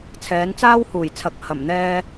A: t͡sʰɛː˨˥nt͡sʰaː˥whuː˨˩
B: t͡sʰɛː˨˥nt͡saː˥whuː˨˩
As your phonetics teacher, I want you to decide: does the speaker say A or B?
B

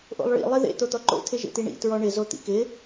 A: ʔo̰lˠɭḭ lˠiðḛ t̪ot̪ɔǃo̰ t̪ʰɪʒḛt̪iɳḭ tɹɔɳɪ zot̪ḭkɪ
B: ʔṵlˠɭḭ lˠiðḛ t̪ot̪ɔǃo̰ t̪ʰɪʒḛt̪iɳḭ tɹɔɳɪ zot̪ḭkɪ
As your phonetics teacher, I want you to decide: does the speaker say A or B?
A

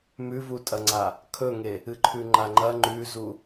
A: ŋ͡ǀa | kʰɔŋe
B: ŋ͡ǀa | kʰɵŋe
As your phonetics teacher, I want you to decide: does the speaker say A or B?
B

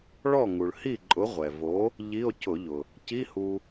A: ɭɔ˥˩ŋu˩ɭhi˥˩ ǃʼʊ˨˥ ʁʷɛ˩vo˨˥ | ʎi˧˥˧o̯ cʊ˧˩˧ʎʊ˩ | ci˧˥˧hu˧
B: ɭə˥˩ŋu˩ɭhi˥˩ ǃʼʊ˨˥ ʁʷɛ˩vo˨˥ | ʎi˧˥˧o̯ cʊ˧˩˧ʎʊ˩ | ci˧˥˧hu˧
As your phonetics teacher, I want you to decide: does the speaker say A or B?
A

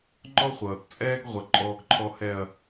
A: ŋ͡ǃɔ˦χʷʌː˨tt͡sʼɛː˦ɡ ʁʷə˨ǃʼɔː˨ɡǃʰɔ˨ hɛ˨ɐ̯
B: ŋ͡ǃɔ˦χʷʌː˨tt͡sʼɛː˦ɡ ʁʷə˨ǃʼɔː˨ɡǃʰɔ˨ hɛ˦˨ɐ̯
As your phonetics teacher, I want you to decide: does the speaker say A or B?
A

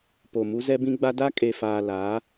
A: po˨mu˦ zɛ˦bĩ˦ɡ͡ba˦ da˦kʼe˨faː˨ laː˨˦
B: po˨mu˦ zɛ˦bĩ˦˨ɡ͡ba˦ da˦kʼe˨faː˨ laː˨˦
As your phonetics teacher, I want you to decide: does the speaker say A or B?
A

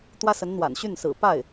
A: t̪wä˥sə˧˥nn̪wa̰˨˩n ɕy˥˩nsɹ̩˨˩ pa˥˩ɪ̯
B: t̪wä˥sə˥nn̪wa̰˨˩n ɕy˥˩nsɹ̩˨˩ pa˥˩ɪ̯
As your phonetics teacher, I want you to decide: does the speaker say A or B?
A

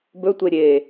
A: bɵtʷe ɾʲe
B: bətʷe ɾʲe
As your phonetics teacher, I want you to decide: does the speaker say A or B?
A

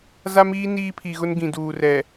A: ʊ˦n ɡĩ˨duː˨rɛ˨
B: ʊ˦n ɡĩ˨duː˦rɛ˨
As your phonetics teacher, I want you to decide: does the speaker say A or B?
A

